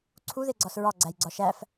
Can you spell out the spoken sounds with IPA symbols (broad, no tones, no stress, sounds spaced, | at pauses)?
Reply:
ǀʰ u ð e ɡ͡ǀ ɒ s ɹ ɒ ɡ͡ǀ æ j ɡ͡ǀ ɒ ʃ æ f